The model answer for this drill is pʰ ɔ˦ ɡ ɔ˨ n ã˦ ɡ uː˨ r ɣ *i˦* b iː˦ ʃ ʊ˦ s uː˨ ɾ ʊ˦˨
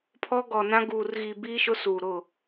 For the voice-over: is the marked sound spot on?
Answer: no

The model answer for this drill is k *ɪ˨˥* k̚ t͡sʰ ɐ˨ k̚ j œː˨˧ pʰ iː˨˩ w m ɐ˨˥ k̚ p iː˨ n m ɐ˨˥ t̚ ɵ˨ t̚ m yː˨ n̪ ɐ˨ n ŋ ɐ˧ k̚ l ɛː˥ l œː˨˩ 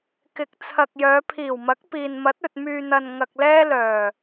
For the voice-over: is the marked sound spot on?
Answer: yes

